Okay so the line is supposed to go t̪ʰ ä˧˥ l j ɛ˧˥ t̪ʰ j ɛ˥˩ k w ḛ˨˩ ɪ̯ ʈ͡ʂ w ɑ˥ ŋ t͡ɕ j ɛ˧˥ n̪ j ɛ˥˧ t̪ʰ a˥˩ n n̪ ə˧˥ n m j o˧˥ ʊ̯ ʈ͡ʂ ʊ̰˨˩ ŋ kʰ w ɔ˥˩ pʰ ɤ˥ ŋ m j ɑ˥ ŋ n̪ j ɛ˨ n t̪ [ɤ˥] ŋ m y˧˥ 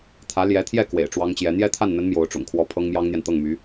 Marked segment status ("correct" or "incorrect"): incorrect